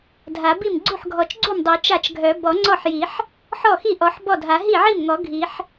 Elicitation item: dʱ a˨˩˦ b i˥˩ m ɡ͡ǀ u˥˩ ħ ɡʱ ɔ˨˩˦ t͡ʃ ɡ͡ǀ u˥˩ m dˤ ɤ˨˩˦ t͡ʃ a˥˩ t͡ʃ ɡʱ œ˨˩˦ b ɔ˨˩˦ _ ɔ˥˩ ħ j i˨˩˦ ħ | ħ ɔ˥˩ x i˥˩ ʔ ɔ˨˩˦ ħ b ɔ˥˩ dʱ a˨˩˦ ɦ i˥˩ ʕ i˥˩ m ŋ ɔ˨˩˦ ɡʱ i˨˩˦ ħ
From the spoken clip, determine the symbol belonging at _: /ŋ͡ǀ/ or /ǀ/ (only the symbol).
ŋ͡ǀ